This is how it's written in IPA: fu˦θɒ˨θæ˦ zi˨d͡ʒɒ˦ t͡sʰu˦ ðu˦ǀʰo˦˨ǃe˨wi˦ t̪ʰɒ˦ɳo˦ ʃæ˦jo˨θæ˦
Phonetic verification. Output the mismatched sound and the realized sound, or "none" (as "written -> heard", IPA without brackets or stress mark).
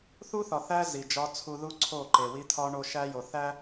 f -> θ